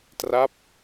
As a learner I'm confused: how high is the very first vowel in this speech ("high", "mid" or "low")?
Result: low